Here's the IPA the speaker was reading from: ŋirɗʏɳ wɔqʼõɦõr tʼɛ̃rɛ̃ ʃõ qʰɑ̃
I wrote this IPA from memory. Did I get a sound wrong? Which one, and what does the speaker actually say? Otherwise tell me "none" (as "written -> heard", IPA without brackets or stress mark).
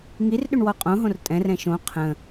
ɑ̃ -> ə̃